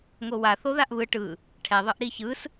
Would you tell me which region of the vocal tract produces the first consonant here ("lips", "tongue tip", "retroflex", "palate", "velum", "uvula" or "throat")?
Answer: velum